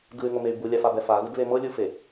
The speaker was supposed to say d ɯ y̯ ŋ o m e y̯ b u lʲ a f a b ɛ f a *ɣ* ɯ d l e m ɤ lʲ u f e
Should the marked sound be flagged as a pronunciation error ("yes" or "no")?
no